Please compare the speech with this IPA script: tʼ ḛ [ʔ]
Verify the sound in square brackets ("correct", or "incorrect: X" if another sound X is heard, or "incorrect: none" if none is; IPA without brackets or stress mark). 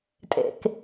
incorrect: k